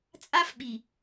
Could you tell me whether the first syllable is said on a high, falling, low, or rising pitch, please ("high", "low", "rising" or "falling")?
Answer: high